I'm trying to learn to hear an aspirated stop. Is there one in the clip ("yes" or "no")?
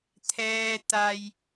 yes